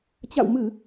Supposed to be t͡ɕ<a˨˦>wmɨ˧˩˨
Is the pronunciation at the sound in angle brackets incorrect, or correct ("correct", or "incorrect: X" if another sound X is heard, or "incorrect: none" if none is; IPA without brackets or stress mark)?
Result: incorrect: a̰˧˨